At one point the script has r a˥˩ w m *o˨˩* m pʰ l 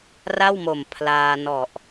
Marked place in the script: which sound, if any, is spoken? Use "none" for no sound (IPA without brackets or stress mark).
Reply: o˨˩